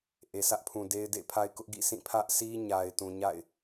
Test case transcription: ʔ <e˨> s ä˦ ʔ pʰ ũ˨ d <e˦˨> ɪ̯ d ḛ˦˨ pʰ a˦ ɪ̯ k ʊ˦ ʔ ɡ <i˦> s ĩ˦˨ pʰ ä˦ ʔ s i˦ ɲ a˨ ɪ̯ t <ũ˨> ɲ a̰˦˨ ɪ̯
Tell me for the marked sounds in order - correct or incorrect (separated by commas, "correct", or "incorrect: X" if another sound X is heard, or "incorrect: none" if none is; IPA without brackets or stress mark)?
correct, incorrect: e˦, incorrect: ḭ˦˨, correct